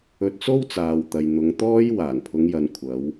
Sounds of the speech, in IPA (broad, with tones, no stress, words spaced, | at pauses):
ɵ˧t̚t͡so˥wt͡saː˨wt̪ɐ˨j n̪ʊ˨˧ŋt̪ɔː˥j waː˨˩npʰʊ˨˧ŋjɐ˨n kʷʰɐ˨˧w